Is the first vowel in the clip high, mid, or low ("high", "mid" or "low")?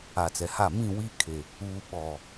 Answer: low